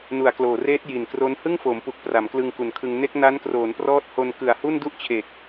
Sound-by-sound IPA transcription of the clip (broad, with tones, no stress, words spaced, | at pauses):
nu˨˩a̯kloː˨˩reː˦˥t̚ ji˨˩nkro˦˥n hɯ˥˩ŋfoː˩˦mpu˨˩k̚ pra˩˦mklɯ˧ŋku˩˦nkʰɯ˧ŋ ne˦˥k̚ na˦˥nkroː˩˦nprɔː˦˥t̚ho˧n kɯ˨˩a̯hu˥˩n du˥˩ʔt͡ɕʰe˨˩k̚